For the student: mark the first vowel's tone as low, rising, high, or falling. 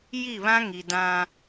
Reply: falling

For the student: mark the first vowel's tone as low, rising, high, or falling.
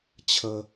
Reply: high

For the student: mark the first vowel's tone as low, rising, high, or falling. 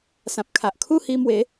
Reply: low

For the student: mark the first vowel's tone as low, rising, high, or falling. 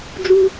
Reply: high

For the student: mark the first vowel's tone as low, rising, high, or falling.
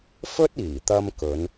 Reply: high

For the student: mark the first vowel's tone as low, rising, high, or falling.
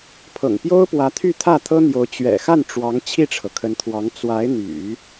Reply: low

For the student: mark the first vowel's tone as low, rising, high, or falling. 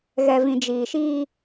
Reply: low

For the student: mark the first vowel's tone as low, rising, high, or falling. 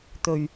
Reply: low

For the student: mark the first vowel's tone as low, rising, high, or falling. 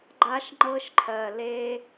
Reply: high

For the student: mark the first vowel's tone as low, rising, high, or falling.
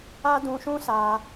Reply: high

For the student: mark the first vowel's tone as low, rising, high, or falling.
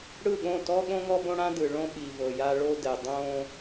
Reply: falling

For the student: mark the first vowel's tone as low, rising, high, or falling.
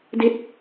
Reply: falling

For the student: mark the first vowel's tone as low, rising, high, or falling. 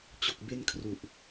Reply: low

